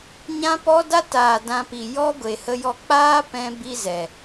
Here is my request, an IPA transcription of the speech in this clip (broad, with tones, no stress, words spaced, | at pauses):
ɲã˦pɔ˦da˦ taː˨ dã˧pi˨ jɔ˦ ɡʷe˨hə˧jɔ˧ k͡paː˦pɛ̃˧ bi˦zɛ˨